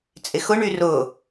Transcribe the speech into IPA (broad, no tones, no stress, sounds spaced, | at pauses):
t͡sʼ ɪ x ʊ ɳ y r ʊː